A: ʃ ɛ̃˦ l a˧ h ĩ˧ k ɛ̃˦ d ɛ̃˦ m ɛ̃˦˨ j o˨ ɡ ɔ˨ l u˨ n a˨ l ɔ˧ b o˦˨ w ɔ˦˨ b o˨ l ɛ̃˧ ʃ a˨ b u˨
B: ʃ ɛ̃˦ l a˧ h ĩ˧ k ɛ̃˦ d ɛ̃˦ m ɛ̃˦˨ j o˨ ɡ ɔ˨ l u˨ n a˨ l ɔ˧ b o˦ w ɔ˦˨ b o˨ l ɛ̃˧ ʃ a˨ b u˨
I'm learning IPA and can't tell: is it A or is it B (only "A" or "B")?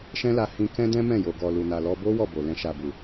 B